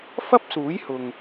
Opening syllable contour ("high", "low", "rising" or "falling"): high